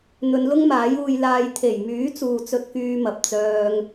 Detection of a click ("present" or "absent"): absent